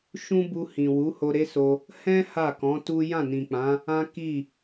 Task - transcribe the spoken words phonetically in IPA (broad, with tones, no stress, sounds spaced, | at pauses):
ʃ ũ˦ b u˧ h ĩ˨ w u˨˦ h o˧ ɾ e˦ s o˧ | h ɛ̃˦ h a˦˨ k ɔ̃˨˦ t u˦ j ã˦˨ n ĩ˨ k͡p ã˨˦ | ã˦ k i˦˨